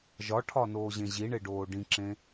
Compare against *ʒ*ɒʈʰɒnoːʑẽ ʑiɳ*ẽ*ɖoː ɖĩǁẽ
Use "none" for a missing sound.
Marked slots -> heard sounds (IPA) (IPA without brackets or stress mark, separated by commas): ʒ, e